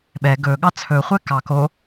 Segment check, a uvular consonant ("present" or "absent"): present